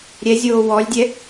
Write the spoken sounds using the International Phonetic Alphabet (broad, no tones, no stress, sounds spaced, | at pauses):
ɾʲ ɛ zʲ oː w ɔ lʲ dʲ ɛ